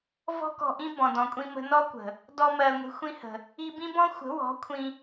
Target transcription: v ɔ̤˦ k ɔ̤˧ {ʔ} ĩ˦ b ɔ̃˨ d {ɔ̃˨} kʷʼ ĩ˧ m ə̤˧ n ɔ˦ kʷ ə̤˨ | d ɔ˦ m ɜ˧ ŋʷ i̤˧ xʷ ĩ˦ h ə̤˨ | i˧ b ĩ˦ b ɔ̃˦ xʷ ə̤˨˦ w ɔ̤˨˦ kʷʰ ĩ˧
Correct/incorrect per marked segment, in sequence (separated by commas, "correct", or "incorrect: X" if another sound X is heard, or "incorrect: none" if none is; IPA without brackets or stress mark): correct, correct